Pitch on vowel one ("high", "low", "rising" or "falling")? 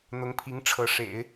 rising